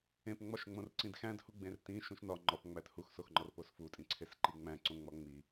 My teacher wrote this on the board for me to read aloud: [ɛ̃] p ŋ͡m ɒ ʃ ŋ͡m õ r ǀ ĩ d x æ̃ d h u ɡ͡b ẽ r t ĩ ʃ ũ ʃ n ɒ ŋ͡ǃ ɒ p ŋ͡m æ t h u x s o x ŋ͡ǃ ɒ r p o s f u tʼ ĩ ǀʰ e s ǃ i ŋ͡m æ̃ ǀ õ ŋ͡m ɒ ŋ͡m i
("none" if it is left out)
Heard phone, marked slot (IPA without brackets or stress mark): ẽ